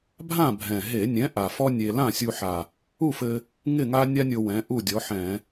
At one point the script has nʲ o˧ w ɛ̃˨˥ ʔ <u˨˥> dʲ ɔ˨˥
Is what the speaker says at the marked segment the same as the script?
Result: no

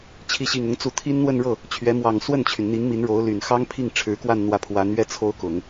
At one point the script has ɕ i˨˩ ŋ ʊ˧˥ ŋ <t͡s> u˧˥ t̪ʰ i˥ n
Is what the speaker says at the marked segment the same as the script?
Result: yes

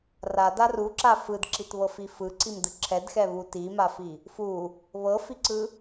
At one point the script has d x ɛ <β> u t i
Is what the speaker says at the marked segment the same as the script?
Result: yes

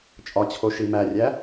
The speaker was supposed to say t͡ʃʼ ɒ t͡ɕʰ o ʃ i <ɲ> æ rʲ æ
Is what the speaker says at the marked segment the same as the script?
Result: no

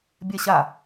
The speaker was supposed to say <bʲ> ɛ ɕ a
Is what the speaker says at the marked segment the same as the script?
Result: yes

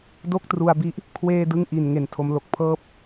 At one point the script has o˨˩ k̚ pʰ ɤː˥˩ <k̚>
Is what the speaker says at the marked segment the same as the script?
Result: no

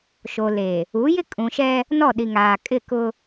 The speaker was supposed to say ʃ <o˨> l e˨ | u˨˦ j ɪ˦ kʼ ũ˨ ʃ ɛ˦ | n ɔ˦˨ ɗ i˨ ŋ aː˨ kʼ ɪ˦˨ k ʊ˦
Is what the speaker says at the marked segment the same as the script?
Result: yes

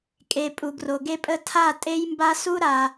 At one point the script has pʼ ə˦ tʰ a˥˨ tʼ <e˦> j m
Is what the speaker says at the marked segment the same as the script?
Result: yes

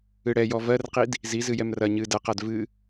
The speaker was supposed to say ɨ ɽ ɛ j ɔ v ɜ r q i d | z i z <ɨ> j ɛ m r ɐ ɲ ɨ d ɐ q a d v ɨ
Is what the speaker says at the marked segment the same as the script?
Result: yes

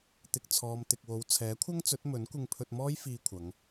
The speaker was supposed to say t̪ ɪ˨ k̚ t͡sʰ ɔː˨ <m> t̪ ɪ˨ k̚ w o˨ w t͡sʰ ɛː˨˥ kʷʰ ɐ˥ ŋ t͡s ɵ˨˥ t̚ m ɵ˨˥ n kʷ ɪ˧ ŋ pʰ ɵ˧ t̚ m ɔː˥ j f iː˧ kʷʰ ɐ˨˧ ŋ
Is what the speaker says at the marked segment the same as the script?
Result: yes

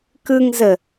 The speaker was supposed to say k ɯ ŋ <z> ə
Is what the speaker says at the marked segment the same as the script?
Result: yes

